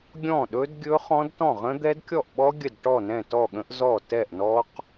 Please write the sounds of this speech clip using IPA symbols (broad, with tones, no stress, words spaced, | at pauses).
ɡʲɔ̃˥˩ɗɵ˦˥d ɡʲɵ˦˥χɔ̃˦˥dtɔ̃˥˩ʁə̃˦˥ d̪ɛ˦˥dkʲɔ˥˩ʔɓɔ˦˥ ɡʲə˥˩dʈɔ˥˩nɛ̃˥˩ tɔ˥˩ɠə̃˦˥ʔzɔ˥˩ tɛ˥˩ʔnɔ˦˥q